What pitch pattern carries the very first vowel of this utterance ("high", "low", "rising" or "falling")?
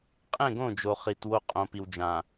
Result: falling